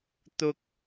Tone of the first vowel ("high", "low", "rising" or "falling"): high